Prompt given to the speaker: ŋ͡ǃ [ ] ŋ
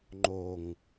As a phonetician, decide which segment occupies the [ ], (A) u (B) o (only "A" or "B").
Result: B